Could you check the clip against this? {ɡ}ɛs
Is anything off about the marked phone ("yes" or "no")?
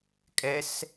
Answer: yes